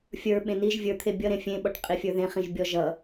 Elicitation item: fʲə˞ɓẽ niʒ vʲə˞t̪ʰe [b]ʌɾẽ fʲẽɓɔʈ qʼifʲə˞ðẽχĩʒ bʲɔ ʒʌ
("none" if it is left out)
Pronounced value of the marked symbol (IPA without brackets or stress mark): bʲ